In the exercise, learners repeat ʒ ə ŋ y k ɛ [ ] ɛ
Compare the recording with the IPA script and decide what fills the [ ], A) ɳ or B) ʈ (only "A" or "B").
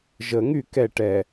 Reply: B